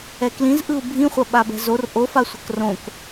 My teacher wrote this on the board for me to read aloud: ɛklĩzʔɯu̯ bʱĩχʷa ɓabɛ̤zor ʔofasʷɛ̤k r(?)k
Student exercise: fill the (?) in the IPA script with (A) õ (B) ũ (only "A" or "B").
A